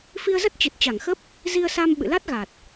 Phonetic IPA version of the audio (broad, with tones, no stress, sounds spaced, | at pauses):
f i˧ ə̯ z ə˦˥ t̚ t͡ɕ ɨ˨˩ t̚ t͡ɕ a˧˩ ŋ x ə˦˥ p̚ | z i˧ ə̯ s a˧ m ɓ ɨ̰˧˨ l a˦˥ t̚ ɣ a˨˩ t̚